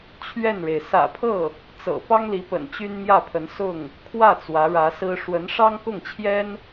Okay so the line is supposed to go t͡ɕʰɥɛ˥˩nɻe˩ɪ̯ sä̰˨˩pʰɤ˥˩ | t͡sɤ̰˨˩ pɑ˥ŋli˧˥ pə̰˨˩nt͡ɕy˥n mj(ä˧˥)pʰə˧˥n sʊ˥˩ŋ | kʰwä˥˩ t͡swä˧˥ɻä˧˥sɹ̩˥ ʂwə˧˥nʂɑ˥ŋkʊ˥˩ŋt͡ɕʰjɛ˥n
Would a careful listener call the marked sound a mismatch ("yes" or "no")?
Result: yes